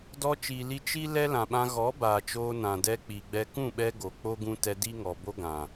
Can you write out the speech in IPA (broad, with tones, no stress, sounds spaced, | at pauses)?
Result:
d ɔ˧ t͡ʃ iː˨ l i˧ t͡ʃ i˦ l ɛ˦ l ã˨ ɓ ã˧ ɣ ɔ˨˦ b aː˨ t͡ʃ oː˧ n ã˨ d ɛ˧ k͡p i˨ ɡ͡b ɛ˧ k ũ˦˨ ɓ ɛ˧ ɡ o˨ k͡p o˦ ɡ ũ˧ t ɛ˧ d i˦ ŋ ɔ˨ b o˦ ɡ ã˨